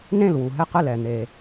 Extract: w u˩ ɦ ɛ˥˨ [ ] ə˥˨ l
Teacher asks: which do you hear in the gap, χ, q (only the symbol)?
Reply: q